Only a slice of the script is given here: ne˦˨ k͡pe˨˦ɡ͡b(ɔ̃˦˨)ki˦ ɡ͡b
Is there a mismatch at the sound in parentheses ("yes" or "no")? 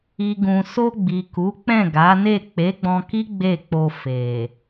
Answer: yes